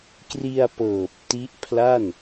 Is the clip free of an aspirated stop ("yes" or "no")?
no